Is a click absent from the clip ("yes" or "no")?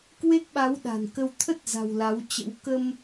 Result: yes